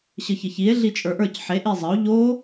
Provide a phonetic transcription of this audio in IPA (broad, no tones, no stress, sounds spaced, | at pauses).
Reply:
ɕ ə ç ə ç i e̯ ɮ i t͡ʃʼ ə˞ ʔ ə˞ c ħ e ʔ i zˤ ə o̯ ʎ o